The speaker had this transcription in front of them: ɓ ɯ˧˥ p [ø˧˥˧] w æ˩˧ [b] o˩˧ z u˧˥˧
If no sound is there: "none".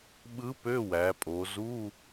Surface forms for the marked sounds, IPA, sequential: ø˧˥˧, pʼ

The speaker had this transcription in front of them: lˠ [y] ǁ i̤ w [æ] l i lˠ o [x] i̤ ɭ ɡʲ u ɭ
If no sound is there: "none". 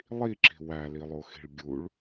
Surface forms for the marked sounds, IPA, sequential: i, æ, x

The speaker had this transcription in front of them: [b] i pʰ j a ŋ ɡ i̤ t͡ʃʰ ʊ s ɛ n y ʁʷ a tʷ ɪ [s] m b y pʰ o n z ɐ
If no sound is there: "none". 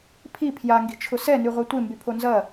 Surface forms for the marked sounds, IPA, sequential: pʰ, none

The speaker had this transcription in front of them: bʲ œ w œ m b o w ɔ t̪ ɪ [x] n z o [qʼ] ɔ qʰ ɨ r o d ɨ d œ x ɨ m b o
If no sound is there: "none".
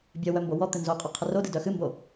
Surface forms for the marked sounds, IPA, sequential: none, qʼ

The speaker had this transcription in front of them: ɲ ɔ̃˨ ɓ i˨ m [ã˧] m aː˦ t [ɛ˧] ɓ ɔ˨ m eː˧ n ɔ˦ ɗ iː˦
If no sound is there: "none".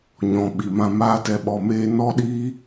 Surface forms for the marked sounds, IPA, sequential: ã˧, ɛ˧

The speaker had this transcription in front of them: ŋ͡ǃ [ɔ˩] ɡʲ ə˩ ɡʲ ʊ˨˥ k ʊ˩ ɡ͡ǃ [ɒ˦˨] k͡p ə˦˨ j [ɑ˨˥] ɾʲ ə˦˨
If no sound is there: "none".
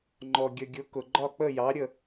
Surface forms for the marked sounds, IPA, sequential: ɔ˩, ɒ˦˨, ɑ˨˥

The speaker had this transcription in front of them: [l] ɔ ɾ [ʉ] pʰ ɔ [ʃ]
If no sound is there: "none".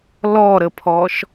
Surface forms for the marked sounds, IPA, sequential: l, ə, ʃ

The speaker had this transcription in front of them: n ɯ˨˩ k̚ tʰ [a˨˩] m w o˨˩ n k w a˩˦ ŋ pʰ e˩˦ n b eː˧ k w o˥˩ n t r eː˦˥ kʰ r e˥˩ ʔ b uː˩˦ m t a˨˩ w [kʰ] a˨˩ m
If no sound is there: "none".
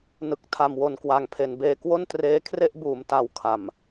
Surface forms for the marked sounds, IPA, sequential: a˨˩, kʰ

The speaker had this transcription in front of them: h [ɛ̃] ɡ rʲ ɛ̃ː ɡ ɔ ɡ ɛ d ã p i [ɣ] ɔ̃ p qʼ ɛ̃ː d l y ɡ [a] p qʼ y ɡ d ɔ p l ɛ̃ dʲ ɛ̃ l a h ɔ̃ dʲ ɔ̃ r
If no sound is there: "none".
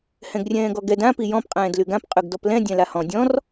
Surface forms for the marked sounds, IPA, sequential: ɛ̃, j, ã

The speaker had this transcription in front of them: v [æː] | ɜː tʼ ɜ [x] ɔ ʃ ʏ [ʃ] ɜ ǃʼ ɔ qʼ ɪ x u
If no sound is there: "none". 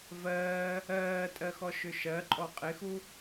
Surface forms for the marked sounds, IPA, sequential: ɜː, x, ʃ

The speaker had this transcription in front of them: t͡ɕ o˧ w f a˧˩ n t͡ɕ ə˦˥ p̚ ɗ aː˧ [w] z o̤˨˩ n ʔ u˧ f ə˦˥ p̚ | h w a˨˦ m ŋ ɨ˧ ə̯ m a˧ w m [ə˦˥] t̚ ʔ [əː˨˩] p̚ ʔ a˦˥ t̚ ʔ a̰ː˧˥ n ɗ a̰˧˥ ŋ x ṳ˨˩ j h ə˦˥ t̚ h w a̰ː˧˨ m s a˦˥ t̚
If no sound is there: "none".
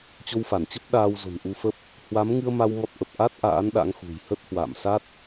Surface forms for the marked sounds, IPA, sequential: w, ɔ˦˥, ə˨˩

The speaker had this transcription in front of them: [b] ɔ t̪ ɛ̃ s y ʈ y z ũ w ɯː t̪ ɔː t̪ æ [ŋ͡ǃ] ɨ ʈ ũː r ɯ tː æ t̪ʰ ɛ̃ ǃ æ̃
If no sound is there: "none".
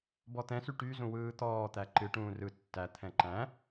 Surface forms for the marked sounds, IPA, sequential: b, ǃ

